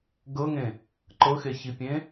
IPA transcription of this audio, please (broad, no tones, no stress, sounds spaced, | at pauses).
ɡ ɤ ŋ ẽ | ǃ ɤ x e ç i pʲ ẽ